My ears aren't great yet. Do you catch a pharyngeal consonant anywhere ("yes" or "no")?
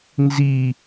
no